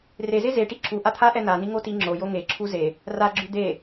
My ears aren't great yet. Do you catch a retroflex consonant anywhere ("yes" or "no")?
yes